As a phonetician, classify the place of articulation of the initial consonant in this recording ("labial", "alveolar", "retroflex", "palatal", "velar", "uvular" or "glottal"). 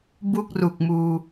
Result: labial